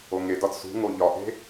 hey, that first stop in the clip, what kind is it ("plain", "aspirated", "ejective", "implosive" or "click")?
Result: plain